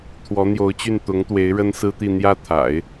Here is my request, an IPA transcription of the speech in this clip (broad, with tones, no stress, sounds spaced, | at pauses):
t̪ʰ w ɔ˧˥ n̪ j o˧˥ ʊ̯ t͡ɕ y˥˩ n t̪ ʊ˧˥ ŋ t̪ w e˧˥ ɪ̯ ɻ ə˥ n s ɹ̩˥ t̪ i˥˧ n̪ j ä˥˩ t̪ʰ a̰˨˩˦ ɪ̯